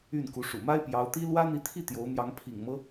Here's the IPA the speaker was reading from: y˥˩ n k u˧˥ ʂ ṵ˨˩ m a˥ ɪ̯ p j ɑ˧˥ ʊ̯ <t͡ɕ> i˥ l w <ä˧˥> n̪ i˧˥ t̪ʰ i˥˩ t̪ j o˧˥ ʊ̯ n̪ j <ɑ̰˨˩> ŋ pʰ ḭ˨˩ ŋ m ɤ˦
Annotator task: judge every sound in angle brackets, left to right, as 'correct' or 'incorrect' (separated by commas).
incorrect, incorrect, incorrect